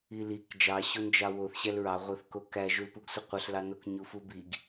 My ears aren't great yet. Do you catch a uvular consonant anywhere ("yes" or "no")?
yes